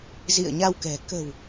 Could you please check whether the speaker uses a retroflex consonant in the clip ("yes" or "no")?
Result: no